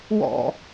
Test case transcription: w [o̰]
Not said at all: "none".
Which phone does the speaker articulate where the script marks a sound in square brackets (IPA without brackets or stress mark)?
ɔ̰